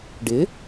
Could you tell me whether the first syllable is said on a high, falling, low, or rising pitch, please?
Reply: rising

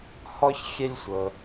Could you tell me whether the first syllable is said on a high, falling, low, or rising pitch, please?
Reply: high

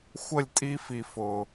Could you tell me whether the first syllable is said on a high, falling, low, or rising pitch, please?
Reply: falling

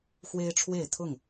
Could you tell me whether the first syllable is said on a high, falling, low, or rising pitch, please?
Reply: high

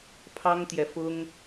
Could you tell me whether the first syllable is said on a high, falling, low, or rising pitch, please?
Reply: high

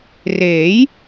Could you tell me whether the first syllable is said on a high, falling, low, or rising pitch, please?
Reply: rising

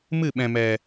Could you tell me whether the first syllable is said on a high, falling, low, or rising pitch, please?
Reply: falling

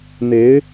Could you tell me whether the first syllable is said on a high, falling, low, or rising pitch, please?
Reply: rising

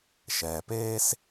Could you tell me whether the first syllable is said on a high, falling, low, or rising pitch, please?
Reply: low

